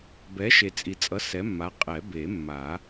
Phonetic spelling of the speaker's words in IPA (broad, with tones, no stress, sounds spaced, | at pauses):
b ɛ˨˥ ʃ e˨ t͡sʼ i˨ t͡sʼ ʌ˨˥ s ɛ˨˥ mː a˨˥ qʼ ɛ˨˩˦ b e˨˩˦ mː a˨˩˦